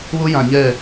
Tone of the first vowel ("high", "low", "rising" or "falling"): high